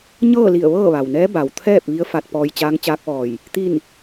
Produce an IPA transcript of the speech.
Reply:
ɲ ɤː˥˨ l i˧˩ ə̯ ʋ ɤː˥˨ ʋ a˩ w n ɛː˧˥ b a˩ w t̪ʰ ɛː˥˨ p̚ ʋ i˧˥ ə̯ f a˧ t̚ p ɔː˧ j t͡ɕ aː˧˥ ŋ t͡ɕ aː˧˥ k̚ ʋ ɔː˧˩ j | t̪ i˥˨ n

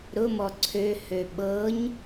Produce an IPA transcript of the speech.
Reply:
ɾ ʊ m ɔ ǀʰ ø h ø ɓ ɤ ɲ

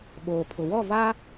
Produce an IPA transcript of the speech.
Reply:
ɓ oː˨ pʰ ʊ˨ w ɔ˦˨ v a˦

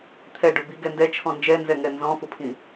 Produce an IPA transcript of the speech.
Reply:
t̪ʰ ɛ ɖ ʊ b i ɡ ɛ n d ɛ t͡ʃʰ ɔ̃ n d͡ʒ ɛ n z ɛ ŋ ɛ n z ɔ̃ f ʊ pʰ ĩ

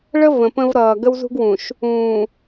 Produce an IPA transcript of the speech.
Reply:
ɭ ə˦ v ə̃˨ p ə̃˦ v ɾ ʌː˨ ɡ ə˦ w z ṳ˦ ɡ w ũ˨ ʃ | ũː˨

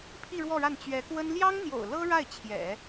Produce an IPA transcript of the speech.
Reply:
pʰ i˥˧ ɻ w ɔ˥˧ ɻ a˥˩ n t͡ɕ ɥ ɛ˧˥ k w ə˥ n l j ɑ˥ ŋ n̪ j o̰˨˩ ʊ̯ l ɤ˥ ɻ a˥˩ ɪ̯ t͡ɕʰ j ɛ̰˨˩˦

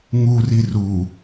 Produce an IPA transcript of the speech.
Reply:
ŋ u r i r u

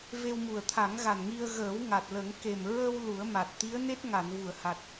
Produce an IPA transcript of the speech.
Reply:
v e˧ w m u˨˩ ə̯ t̪ʰ a˨˩˦ ŋ ɣ a˨˩ n ŋ i˧ ə̯ ɣ əː˨˩˦ w ŋ a˨˩ t̚ l ə˨˩˦ ŋ k e˨˩ m ɹ ə˧ w l u˨˩˦ ə̯ m a˨˩ t̚ t̪ i˧˥ ə̯ n e˦˥ t̚ ŋ a˨˩˨ n v u˨˩˨ ə̯ h a˨˩ t̚

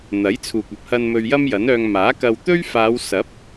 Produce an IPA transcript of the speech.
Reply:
n̪ ɐ˨˥ j t͡sʰ uː˨ k̚ ɐ˨ p̚ h ɐ˧ n m ɵ˧ ɥ j ɐ˥ m j ɐ˨˥ n œː˧ ŋ m aː˨˥ k ɐ˧ w t̪ ɵ˥ ɥ f aː˨˧ w s ɐ˨˥ p̚

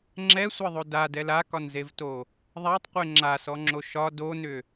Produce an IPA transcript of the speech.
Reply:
ŋ͡ǁ ɛ sʷ ɛ ðˤ o d a d ɛ l a k ɒ n z e v t o | ðˤ a tˤ qʷ e ŋ͡ǁ a s ɔ ŋ͡ǁ o ʃ ɒ d o n ʏ

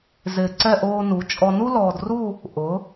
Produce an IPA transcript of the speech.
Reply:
z ɪː˧˩ ǀ ɛ˥˧ ʔ oː˧ n u˩˧ t͡ʃʼ ɔ˧ n u˥ l ɔː˧ d r u˥˧ | ʔ ʊ˩˧

